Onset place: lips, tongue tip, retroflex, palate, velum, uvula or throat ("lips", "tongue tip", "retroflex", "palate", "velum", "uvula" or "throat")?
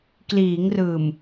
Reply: velum